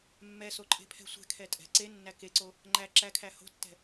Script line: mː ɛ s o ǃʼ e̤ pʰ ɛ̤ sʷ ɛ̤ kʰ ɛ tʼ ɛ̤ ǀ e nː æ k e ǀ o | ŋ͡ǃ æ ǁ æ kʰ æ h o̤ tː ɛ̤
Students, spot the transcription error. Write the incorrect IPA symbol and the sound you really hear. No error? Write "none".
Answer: none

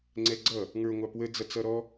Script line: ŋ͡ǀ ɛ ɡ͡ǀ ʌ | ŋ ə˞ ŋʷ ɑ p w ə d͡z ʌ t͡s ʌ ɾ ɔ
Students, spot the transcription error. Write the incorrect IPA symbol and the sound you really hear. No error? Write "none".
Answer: none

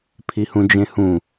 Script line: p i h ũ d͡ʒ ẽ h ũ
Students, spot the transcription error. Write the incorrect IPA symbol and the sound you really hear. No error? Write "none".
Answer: p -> pʰ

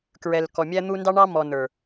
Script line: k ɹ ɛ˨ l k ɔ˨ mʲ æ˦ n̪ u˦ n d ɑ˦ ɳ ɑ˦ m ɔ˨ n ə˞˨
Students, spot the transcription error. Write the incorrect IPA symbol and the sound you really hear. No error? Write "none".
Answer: none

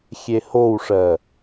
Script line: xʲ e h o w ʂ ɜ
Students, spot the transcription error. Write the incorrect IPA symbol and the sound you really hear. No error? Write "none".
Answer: none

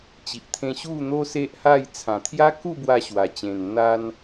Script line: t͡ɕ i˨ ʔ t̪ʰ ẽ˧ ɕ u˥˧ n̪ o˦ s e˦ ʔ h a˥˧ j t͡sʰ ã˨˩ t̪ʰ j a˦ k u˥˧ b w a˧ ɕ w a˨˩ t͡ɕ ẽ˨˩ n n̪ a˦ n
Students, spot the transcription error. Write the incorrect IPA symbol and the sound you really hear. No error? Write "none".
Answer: none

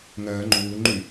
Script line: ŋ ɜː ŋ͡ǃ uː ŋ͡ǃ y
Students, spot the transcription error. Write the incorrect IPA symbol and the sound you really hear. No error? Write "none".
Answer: none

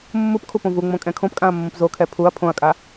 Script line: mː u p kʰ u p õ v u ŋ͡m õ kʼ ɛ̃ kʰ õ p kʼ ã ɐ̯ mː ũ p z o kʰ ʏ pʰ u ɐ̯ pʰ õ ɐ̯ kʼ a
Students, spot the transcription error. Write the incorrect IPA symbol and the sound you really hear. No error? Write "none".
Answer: ʏ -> ɛ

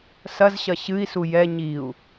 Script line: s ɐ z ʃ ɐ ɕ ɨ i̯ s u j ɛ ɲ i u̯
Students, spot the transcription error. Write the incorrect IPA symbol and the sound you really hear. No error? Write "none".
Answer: ʃ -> ɕ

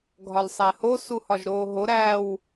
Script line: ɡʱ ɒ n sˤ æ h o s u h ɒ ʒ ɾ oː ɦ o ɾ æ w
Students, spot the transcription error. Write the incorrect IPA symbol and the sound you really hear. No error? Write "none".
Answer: n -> l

